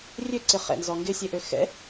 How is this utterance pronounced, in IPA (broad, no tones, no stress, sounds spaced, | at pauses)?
rʲ ø ǀ ɪ χ ɛ̰ n z ɔ ŋ ɡ ɪ sʲ e ʔ ø x ɛ̰